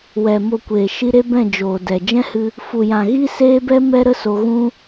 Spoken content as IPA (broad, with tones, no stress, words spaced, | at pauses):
wɛ˨ mo˧kʷeː˨ ʃi˧ ɾe˦bɛ̃˦˨ d͡ʒoː˨dɛ˨ d͡ʒɛ̃˦hɨ˧ | fu˨jã˨ ɣi˦seː˦bɛ˦ mɛ˦ɾə˦ so˧ɣũ˦